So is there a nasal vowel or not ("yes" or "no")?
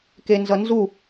no